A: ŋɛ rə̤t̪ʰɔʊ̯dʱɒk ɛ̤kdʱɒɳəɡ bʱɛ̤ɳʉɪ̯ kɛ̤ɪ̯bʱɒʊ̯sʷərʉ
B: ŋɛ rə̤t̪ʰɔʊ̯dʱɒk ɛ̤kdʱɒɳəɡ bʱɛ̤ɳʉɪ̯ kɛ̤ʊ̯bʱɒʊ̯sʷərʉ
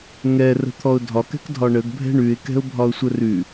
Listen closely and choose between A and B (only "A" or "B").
B